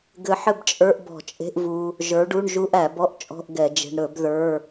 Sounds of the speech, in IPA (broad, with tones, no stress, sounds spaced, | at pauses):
ɡ ɘ˧ ħ ɘ˥˨ b t͡ʃʼ ə˞˧˥˧ ʔ b ɔ̤˧˩˧ t͡ʃʼ e̤˧˥˧ ʔ v u˧ | ʒ ə˞˨˥ ɖ u˧˥˧ ɳ ʒ u˧˥˧ ʔ æ˧˩˧ b ɔ˧˥˧ ʔ t͡ʃʼ ɔ̤˧˥˧ ʔ ɡ ɛ˧˩˧ d͡ʒ e̤˧ ɳ ɾ ɵ˧˩˧ b ð ə˞˧˥˧